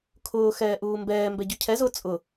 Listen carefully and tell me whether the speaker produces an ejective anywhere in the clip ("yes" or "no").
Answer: yes